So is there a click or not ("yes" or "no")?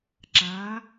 yes